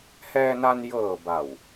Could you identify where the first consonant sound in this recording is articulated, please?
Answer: glottal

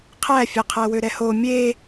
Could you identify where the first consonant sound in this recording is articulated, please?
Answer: uvular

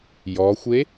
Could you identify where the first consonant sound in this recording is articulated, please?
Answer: palatal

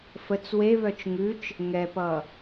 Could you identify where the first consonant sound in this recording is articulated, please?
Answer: labial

